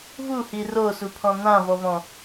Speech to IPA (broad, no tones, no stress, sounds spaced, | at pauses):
v u h i r o s u pʰ ɔ̃ n̪ ã v ɔ v ɔ̃